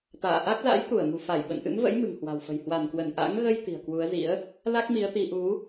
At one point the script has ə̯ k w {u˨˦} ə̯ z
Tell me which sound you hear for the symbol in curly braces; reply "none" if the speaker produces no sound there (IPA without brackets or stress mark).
u˨˦